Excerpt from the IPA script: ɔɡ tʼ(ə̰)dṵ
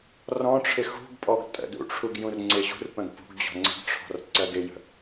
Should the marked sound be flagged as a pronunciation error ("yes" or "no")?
no